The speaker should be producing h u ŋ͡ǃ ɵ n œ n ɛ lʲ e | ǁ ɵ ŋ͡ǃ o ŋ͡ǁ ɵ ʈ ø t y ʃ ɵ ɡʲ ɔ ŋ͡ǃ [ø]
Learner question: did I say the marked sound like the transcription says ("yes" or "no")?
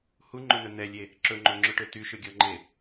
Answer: no